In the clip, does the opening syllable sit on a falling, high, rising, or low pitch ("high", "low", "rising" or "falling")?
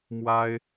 high